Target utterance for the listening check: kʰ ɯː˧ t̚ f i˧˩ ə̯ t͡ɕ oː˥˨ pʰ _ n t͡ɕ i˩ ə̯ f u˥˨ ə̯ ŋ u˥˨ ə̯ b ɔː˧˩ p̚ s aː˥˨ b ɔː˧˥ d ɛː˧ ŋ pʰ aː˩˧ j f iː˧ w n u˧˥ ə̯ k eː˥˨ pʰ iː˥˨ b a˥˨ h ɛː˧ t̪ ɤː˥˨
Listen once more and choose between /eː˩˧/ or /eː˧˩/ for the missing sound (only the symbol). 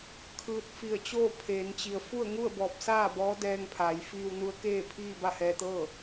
eː˩˧